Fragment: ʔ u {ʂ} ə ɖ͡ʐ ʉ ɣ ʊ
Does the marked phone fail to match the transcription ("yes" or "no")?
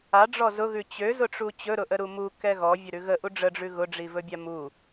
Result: yes